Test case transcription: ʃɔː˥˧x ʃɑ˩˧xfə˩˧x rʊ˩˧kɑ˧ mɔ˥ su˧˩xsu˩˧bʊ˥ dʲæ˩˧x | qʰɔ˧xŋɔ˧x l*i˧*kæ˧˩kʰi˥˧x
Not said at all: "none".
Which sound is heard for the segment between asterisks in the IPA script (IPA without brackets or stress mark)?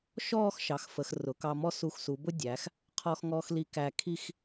i˧